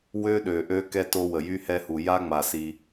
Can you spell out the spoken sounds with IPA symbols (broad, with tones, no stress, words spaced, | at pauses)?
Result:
wø˦ɗø˨ʔø˦ kɛ˦to˦wə˨ jy˦hɛ˦hu˨ ja˦ŋ͡ma˨ si˦